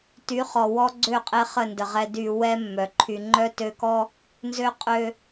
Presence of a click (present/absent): present